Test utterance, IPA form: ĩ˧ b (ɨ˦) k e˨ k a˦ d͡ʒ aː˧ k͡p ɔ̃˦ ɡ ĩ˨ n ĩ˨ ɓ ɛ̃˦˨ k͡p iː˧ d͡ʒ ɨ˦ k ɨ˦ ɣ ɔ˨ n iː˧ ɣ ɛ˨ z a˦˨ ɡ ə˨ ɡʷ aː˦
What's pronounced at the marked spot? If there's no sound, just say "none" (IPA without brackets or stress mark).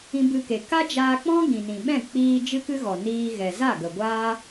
ɨ˧